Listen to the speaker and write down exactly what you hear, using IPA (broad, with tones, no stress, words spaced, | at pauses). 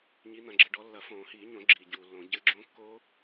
ɲi˨˦n̪ɐ̃˨ ɡ͡ǁɘ˨ɖɔ˨˦ lːɐ˨˩˦fõː˨˩˦hiː˨˩˦ɲõ˨˩˦ ɡ͡ǁiː˨ɟuː˨lːõ˨˩˦ ɟɘ˨˦ɡ͡ǁõ˦˥kːo˦˥